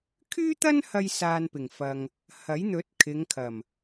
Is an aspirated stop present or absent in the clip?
present